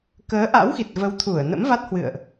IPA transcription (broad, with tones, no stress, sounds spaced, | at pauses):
k əː˨˦ ʔ a̰˧˥ w x i˨˩ t̚ v ə˨˦ w t̪ʰ u˧˩ ə̯ n ə̰˧˥ m v a˦˥ t̚ h w ɨ̰˧˨ ə̯ ʔ